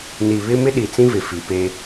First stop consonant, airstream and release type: implosive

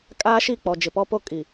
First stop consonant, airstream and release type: ejective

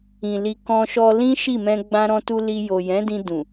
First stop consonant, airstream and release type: plain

